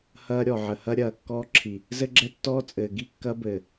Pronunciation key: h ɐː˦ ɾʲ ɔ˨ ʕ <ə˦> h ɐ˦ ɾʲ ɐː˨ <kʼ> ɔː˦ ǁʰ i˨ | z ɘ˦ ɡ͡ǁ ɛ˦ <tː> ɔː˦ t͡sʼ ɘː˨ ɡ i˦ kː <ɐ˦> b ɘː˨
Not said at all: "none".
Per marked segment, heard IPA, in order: ə˨, kː, tː, ɐ˦

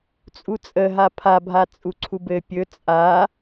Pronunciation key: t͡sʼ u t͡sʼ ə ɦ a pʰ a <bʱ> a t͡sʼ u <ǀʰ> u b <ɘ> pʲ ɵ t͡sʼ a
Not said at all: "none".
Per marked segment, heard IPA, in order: bʱ, ǀʰ, ɘ

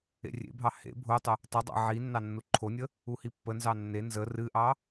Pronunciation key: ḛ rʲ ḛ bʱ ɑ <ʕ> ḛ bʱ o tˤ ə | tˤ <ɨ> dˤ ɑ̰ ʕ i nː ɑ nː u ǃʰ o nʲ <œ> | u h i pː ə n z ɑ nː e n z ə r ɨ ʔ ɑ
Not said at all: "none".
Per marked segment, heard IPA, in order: h, ə, ə

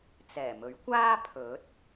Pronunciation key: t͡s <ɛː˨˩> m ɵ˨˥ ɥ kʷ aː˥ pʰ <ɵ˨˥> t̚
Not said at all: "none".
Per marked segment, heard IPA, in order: ɛː˨˩, ɵ˨˥

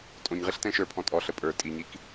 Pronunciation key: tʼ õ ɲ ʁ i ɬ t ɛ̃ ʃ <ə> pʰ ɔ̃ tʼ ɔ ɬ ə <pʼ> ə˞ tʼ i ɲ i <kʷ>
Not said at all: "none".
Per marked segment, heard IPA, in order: ə˞, pʼ, k

